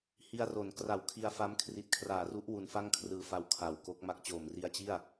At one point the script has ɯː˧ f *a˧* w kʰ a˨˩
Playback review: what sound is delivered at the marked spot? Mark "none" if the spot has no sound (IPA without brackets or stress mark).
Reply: a˧